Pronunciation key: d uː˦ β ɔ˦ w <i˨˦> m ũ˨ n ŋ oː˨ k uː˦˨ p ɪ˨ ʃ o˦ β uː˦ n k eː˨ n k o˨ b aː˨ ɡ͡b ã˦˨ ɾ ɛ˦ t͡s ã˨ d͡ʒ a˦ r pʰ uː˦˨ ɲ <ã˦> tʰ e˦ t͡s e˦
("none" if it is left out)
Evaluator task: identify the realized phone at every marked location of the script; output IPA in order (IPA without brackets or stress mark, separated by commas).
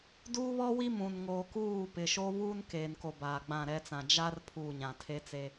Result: i˦, ã˨